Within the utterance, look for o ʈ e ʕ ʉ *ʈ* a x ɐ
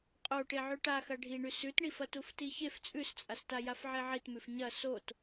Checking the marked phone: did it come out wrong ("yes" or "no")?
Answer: no